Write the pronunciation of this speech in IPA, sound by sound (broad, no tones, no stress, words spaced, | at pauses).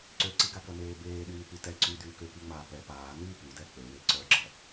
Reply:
ǀøǀiɡakɐ neːbeːɗyː pytɛ ǀy dyːkøkiŋ͡maː pɛ paː nyːpydɛ k͡pøwe ǀœɡ͡ǁɐ